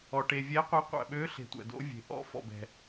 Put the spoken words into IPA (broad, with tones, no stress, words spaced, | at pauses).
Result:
ɔ˩ ʈe˩vʲɛ˨˥qʷɛ˨˥ qʷæ̰˩ɓø˨˥ɬe̤˩ tʷæ̰˩do̰˨˥vʲe̤˩ ʔɔ̰˨˥fɔ̰˩bɛ̤˩